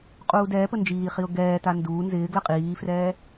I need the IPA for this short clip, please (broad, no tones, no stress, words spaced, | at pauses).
qʼuːdɛːpə nd͡ʒiːχiʊ̯ ɡɛːta nduː nzɪːɡlə qʼiːfrɛː